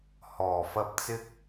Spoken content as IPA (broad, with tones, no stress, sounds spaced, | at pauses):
h ɔː˨˩ f ɐ˥ p̚ t͡s ɪ˥ k̚